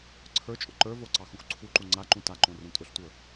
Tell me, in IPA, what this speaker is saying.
ǀʰ ə˞ t͡ʃʼ ʊ ǃ ə˞ v o ǀ ɑ x ũ x ǀʰ u ǃ u ŋ͡ǀ a ǃ ũ t a ǃ õ r ũ tʼ ʊ ɬ tʷ ə˞

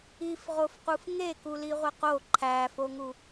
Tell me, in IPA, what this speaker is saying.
i f ʁ o f q u f ŋ e k u l i ʁʷ e q o ǃʰ æ f o ŋ u

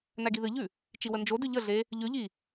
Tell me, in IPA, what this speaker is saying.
n æ ɡ i ð ɨ ʎ ʉ | t͡ʃ i w ə n d͡ʒ o d ʉ ʎ ə ɮ e | ʎ ʉ ʎ i

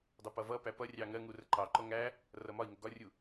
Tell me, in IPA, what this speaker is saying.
dˤ ɛ p ʌ v ʌ p æ p ʌ rʲ ɑ ŋ ɜ ŋ u r ə ǃ ɑ ǃ ɔ ŋ æ | r ʌ m ɒ i̯ ŋ ə ɡ ɒ rʲ u

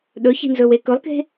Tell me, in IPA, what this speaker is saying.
ɗ ɵ ç i̤ n z ɵ w e k ɵ lˠ k e̤

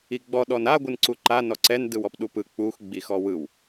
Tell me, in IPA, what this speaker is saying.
i ɡ͡b ɔ ɗ ɔ n a ɡʷ ɯ n ǀ u ǃ a n ɔ ǀ ɛ n d ɯ w ɔ p ɗ u p ɯ k͡p u x ɡ͡b i x ɔ w ɯ w

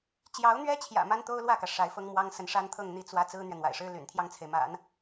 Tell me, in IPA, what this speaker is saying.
t͡ɕ j ɑ˧˥ ʊ̯ n̪ ɥ ɛ˥ t͡ɕʰ j ä̰˨˩ m a˥ n t̪ o˥ ʊ̯ l w ä˥˩ k ä˩ ʂ a˧˥ ɪ̯ f ɤ˥ ŋ m w ɑ˥ ŋ s ə˧˥ n ʂ a˥ n t̪ʰ ɤ˥˧ ŋ n̪ i˥˩ t͡s w ä˥ t͡s ɹ̩˥ n̪ ɥ ɛ˨ n̪ w a̰˨˩ ɪ̯ ʂ ɻ̩˥ l y̰˨˩ n t̪ʰ j ɑ˥˩ ŋ t͡sʰ e˩ ɪ̯ m a̰˨˩˦ n

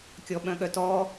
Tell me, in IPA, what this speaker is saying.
kʲ ɔ ɓ œ̃ ɠ œ t ɔ

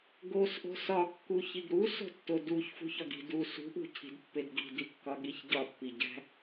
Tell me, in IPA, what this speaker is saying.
ɡ o s ʔ o̤ s ɒ kː u ç i ɡ ɾ u s o̤ tː o d u ç f ṳ ç ɒ ɡ i̤ d u s ṳ ʔ ṳ cʰ i̤ d pː e d ɡ i̤ d i kː ɒ ɠ i ç ɟ ɒ pː i ɟ æ̤

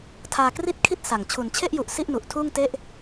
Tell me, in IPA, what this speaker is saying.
tʰ aː˧ k r i˥˩ t̚ kʰ i˥˩ t̚ s a˨˩ ŋ t͡ɕʰ u˩˦ n t͡ɕʰ e˥˩ ʔ j u˨˩ ʔ s i˥˩ ʔ n u˨˩ ʔ tʰ uː˥˩ ŋ t e˥˩ ʔ

